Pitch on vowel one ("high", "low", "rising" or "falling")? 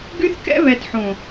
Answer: high